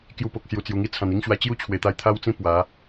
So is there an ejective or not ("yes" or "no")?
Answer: no